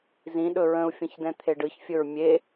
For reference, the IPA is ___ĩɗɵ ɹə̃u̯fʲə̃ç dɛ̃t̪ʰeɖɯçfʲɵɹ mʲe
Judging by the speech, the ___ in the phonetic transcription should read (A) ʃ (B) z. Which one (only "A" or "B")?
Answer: B